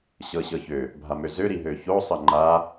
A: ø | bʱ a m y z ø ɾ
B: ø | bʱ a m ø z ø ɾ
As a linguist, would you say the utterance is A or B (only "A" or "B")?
B